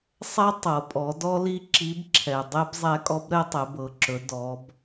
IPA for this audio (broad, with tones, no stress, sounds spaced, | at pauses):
sˤ ɛ˥ tˤ ɤ˩ pʼ ɔ˩˧ d ɔ˥ l i˥ ǁ i˧˥ b ǁʰ ɛ˩ dˤ ɛ˥ b zˤ ɛ˧˥ kʼ ɔ˧˥ b ɾ ɛ˥ tˤ ɛ˩˧ b ɤ˩˧ ǁ ɵ˩˧ d ɔ˩˧ b